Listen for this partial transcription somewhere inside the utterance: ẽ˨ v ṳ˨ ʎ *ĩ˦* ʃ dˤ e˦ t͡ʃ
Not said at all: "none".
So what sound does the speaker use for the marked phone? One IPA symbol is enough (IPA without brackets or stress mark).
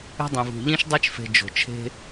ĩ˦